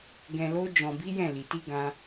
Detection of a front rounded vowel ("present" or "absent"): absent